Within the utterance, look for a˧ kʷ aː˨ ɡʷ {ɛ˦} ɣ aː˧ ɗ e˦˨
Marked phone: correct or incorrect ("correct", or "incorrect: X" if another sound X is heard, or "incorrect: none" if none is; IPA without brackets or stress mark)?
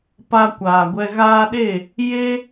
incorrect: ɛ˧